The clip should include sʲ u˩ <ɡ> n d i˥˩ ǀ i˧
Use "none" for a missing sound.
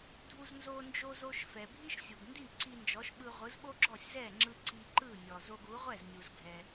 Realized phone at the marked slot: ɡ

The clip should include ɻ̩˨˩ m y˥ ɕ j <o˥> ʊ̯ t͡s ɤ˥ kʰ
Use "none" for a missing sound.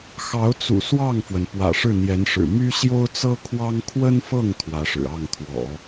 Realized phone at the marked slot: o˥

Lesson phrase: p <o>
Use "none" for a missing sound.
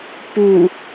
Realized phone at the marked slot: u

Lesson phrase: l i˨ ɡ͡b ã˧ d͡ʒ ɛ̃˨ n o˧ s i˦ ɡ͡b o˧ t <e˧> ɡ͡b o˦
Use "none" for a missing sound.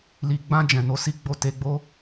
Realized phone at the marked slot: e˧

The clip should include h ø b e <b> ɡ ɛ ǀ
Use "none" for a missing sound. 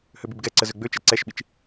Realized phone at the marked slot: b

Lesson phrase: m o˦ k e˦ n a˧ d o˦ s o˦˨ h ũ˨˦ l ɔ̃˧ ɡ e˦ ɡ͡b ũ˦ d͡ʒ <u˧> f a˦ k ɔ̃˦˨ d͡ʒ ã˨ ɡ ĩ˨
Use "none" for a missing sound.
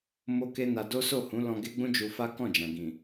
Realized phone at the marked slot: u˧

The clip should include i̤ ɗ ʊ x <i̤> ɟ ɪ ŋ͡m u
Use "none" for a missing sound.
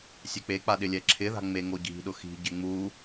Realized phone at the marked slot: i̤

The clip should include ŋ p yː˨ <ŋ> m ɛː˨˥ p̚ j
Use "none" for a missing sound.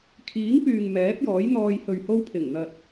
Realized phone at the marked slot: ŋ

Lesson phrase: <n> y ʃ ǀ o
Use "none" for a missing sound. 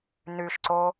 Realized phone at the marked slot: n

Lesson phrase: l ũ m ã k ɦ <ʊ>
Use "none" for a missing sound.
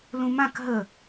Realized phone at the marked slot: ə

